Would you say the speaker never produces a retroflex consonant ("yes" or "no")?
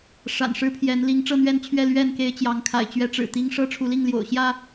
no